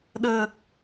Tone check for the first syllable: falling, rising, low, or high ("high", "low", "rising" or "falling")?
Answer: low